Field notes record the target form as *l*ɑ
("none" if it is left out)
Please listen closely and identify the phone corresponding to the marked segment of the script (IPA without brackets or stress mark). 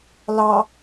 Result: l